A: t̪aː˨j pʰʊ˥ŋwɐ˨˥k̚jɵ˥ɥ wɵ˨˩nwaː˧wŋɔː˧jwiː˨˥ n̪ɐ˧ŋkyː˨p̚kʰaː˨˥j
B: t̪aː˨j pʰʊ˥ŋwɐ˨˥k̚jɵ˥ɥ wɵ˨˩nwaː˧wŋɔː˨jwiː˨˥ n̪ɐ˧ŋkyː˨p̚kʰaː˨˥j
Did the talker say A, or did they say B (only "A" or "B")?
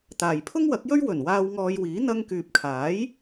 A